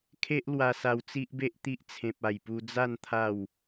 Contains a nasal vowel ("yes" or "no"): yes